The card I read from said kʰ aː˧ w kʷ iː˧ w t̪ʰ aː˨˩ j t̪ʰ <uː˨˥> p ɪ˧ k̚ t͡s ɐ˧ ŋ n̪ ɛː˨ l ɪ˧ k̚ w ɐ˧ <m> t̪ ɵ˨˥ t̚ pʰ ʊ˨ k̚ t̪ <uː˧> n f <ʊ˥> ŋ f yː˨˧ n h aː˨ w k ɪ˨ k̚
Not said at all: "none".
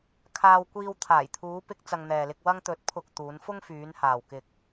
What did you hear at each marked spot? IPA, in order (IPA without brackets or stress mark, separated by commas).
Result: uː˨˧, ŋ, uː˨˧, ʊ˥